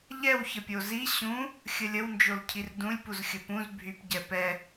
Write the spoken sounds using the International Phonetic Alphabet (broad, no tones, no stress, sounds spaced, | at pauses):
ʎ ɛ w ç ə pʲ o z i ɕ ũ | xʲ ə lʲ ə w n d͡ʒ o l cʰ i r d ũ lʲ p u z xʲ ə p ũ z bʱ y p ɟ ɛ p ɛ